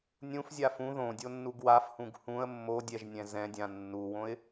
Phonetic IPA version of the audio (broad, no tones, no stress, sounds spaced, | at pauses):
nʲ ũ f zʲ a f ũ ð õ dʲ o nː u ɡ w a f h ũ ɡ h ũ ə̯ mː o dʲ ɛ ʒ nʲ ɛ̃ z ɛ̃ dʲ ã nː u w õ ɪ̯